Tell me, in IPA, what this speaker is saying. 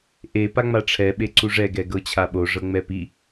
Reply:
ʔ e p a ŋ͡m a ʈ͡ʂʰ ɛ ɓ e ǀ u ʐ ɛ ɡ ɛ ɡ ɤ t͡ɕʰ a ɓ o ʐ ɤ ŋ͡m ɛ p i

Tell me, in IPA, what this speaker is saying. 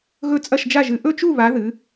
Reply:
ɣ ɵ˥˨ t͡sʼ ɐ˥˨ ʃ d͡ʒ a˥˨ ʒ ɨ˨˦ ʔ ɵ˥˨ t͡ʃ u˥˨ β a˨˦ ð ɨ˨˦

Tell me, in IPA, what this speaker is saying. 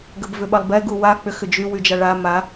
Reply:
ɡ ə b v ʏ ɓ ɐ lˠ b ɛ ɡ u w a k͡p ʏ x ʏ d͡ʒ y w y d͡ʒ a ɭ a m a

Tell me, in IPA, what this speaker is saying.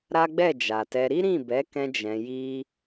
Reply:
ɾ a˦ ɡ͡b ɛ˦˨ d͡ʒ a˨ t ɛ˧ ɾ i˦ ɾ ĩ˦˨ b ɛ˨˦ k ɛ̃˦ d͡ʒ ɛ̃˧ j i˦

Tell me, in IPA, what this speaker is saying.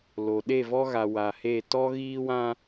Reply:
l o˨ ɗ e˦˨ v ɔ˦ ɣ a˨ w a˨ h e˦˨ t ɔ˦ ɣ iː˦ w ã˦

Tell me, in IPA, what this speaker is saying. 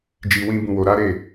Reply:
d͡ʒ i˧ w ĩ˦ b ũ˧ w o˧ ɾ a˦ ɾ e˦˨

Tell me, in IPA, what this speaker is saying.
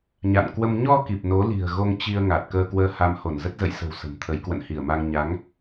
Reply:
ɲ a̰˧˨ n k w ə˧ m ɲ ɔ˧ k i˨˩ p̚ n o˨˦ l i̤˨˩ ə̯ ɣ o˧ ŋ t͡ɕ i˧ ə̯ ŋ a˨˩ t̚ k əː˧ k w əː˧ h a˧ m h o˧˩ n z ə˦˥ t̚ z ə̰˧˨ j s ə̤˨˩ w s ə̤˨˩ m t̪ʰ ə˨˦ j k w ə̰˧˨ n h i˧˩ ə̯ m a˧ ŋ ɲ a˨˦ ŋ

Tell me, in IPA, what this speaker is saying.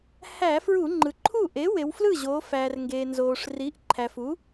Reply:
h æ˧˩˧ f ɹ u˧˩˧ ŋ͡ǃ ɯ˩ ǃʰ u˥˩ ʔ e˩˥ w e˩˧ w f l ɯ˥˩ ʑ oː˩˧ f æː˩ r ŋ ɡ eː˩ n z oː˩ ʂ r i˩˥ ʔ ǃʰ æ˩ f u˩˥

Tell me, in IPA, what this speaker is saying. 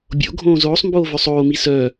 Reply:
bʲ o̰ ɡʱ õː z oː sˤ m b oː v œ sˤ oː m i s œː

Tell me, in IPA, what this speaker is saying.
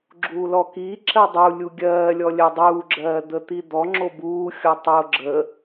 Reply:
ɡ͡ǁ uː l ɔ k iː ǁ ɜ dˤ u lʲ u ɡʲ ɜː lʲ ɔ lʲ ɜ dˤ uː ɡ͡ǁ ɜː d̪ ə t̪ i d̪ ɔ ŋ͡ǁ o b uː xʲ ɔ tˤ o ɡ͡ǁ ə

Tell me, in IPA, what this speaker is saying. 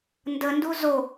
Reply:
n d ə n d u z o

